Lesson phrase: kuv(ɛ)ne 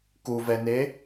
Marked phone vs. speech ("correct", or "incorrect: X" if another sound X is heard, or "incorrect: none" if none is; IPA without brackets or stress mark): correct